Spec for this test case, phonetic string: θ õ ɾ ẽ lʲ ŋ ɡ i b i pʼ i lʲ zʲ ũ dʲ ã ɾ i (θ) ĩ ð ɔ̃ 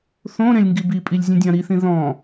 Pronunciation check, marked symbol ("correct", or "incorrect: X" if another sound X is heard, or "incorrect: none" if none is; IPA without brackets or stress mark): correct